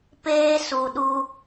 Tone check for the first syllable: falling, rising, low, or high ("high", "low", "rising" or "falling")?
high